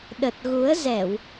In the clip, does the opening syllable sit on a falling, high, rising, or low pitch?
low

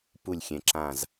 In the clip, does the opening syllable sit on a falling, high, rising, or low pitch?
falling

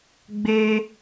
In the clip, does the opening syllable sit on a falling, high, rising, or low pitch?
high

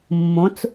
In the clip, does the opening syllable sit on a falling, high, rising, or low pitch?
rising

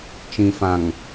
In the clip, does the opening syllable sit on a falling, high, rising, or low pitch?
low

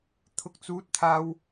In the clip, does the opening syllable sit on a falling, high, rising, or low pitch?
high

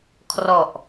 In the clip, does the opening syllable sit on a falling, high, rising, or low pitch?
low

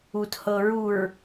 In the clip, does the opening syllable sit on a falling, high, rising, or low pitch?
low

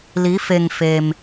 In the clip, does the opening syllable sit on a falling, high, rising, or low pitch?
rising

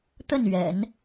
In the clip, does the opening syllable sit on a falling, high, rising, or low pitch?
falling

